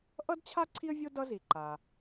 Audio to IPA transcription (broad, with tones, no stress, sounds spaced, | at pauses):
ʔ ʌ˥ d t͡ɕʰ a˥ ǀʰ i˥ ə̯ vʲ o˥ d ʌ˥ z i˩ ǃ a˩